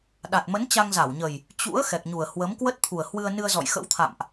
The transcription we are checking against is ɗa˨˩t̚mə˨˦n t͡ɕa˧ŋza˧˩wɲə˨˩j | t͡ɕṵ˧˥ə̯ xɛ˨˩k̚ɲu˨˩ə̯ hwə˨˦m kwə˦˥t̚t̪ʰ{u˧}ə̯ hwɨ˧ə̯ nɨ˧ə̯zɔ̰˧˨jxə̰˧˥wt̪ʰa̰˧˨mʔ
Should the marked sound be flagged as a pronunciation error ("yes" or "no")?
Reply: yes